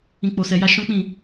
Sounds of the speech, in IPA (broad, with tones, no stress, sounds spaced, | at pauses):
ĩ˨ k͡p o˨ s ɛ˨ j a˧ ʃ ɔ̃˦ k͡p ĩ˦˨